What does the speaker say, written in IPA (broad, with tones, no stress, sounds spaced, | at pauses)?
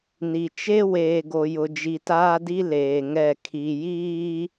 n i˨ t͡ʃ e˦ w eː˨ ɡ o˨ j ʊ˨ d͡ʒ i˨ t aː˦ d i˦ l eː˨ ŋ ɛ˦˨ kʰ i˨ j iː˦